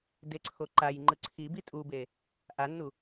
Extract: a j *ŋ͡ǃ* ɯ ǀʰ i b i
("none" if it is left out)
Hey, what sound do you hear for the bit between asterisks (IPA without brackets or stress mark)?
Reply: ŋ͡ǃ